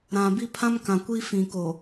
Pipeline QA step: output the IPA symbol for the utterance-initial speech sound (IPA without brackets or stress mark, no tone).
ɾ